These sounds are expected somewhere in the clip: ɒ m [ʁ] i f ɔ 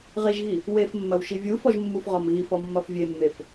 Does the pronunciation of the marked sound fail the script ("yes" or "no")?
yes